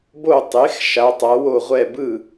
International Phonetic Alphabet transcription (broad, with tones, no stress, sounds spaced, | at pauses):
b o˥˨ tˤ e˨˥ x ʃ a˨˥ tˤ a˨˥ w o˥˨ ʁʷ ɛ˥˨ b ɯ˥˨